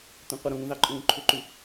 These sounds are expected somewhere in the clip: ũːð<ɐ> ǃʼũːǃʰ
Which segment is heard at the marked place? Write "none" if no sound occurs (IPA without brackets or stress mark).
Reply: ɑ